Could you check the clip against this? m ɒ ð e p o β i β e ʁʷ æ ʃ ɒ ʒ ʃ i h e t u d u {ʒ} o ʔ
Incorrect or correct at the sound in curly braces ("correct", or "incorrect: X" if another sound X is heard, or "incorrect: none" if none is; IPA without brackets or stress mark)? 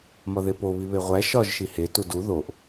incorrect: ð